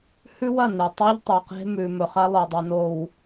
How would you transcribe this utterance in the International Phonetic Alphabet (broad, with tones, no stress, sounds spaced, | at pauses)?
h ʉ˦ w ɐ˦˨ n e˨ tˤ o˦ ʎ tˤ o˨ q e̤˦ m ʉ˨ m ɵ˨ χ a˦ lˠ ɵ˨ dˤ ɵ˨ n o˨ w